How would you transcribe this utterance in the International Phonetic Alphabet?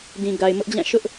d ĩ˨ ɡ a˨ ɪ̯ m ʊ˦ ʔ d͡ʑ ã˦˨ ʃ ʊ˦ ʔ

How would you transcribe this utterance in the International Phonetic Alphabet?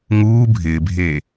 ŋ uː bʱ ɪː bʱ eː

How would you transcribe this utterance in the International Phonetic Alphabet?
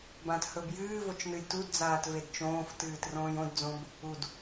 b ã t h ɵ b j ɨː v o t͡ʃ n ɨ j t u d d͡z aː t v e d t͡ʃ õː f t ɨː t r õː j õ d d͡z õ b | u d

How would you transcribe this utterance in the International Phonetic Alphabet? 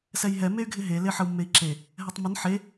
s ɛ j ɦ ɛ m e y̯ ɡʱ ɪ ɦ e l e ħ ə u̯ mː e i̯ ǁ e | ɦ ɛ tˤ m ə n ħ e

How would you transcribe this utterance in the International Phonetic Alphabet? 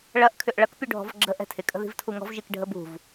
ɭ ɐ ʔ kʰ ʏ ʔ ɭ ɐ k pʲ u ɖʱ ɔ̤ v ɡ͡ǁ ə ʔ ɛ̤ tʰ ɪ kʼ ə̤ ð i̤ v tʰ u ŋ ɔ̤ v ʒ i k ɖʱ ə b ṳ v

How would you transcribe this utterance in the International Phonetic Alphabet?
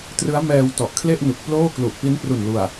t r ɯ˦˥ a̯ m ɛː˧ w t ɔ˨˩ ʔ kʰ l e˥˩ ʔ n u˨˩ k̚ p l oː˥˩ k l u˨˩ ʔ p i˦˥ n p r u˨˩ n l u˨˩ a̯

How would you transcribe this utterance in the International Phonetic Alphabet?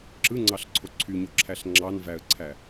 ǁ ɯ ŋ͡ǀ ɑ ɬ ǀʰ o ǀʰ y ɲ o ǁʰ æ ɬ ŋ͡ǁ ɑ n v æ ə̯ ǀʰ æ

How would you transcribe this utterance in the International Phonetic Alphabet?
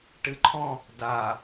ʈ ɨ ǃʰ ɔ̃ | d a

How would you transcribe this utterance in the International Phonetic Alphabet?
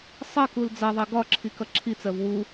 sˤ ɜ k u l d͡z ʌ ðˤ ɜ ɡ ɒ ǁʰ i k ʌ ǁʰ i t͡s ɜ v w u

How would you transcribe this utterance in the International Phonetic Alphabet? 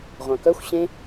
ʁʷ ã k œ xʷ ɕ ẽ

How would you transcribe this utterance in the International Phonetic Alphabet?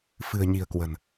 f ɨ̤˨˩ ə̯ ɲ i̤˨˩ ə̯ k w ə̤˨˩ n

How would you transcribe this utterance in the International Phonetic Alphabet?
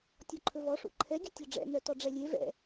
tʲ ɔ ǃʰ ɵ v ɔ ʂ ṵ ǃʰ ɛ ɡʲ ɵ tʲ ɒ ɖ͡ʐ ɛ̰ n œ t ɔ ɖ͡ʐ ɛ lʲ e v ɛ̰

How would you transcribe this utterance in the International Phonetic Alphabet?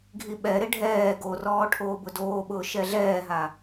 ɡʱ i ɓ ɛ ɾ ɪ ɖʱ ɛː ɡ o r ɔː ʈʰ oː b ʊ d oː ɓ ʊː ʃ ɛ ɮ ɛː ɦ a

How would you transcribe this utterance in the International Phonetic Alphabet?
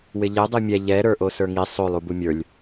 w ɪ ʎ ɛ dˤ i mʲ ɛ ʎ ɛ ɾ ə˞ ʔ o s ə˞ ŋ i sˤ o lˠ u b u mʲ ə˞ lʲ

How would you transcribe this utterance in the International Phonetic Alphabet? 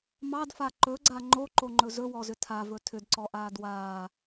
m ɑ d f a ǃ ɵ ɡ͡ǀ a ŋ͡ǃ o ǃ o ŋ͡ǃ ɵ z ɵ w ɔ z ʏ tʰ a v ɵ tʰ ʏ d ǀ ɔ ʔ aː d w aː

